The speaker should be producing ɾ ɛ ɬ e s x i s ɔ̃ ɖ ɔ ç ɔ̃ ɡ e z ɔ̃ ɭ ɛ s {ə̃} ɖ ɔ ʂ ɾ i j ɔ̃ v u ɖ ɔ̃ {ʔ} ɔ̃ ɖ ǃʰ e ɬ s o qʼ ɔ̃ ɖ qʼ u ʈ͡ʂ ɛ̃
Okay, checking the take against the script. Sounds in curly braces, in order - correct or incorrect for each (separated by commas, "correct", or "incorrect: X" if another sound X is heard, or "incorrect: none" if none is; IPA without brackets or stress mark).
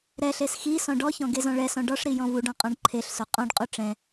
incorrect: ɔ̃, incorrect: qʼ